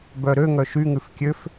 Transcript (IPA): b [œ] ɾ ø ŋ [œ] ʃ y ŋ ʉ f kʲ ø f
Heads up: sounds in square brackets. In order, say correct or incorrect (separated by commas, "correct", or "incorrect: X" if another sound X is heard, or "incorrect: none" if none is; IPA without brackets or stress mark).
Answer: correct, correct